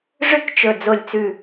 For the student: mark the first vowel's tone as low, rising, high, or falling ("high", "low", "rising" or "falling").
falling